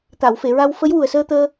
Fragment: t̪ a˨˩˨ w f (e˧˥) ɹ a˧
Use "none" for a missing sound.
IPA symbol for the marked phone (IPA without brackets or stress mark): e˨˩˨